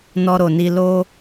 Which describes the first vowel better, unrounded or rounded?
rounded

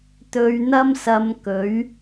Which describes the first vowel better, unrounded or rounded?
rounded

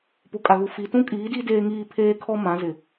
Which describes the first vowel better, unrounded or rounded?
rounded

